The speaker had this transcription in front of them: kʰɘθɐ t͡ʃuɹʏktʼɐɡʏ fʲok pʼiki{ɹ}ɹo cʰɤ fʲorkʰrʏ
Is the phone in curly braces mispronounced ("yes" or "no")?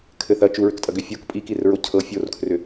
yes